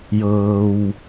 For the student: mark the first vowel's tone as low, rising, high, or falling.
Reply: low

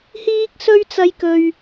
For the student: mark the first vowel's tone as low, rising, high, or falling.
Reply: high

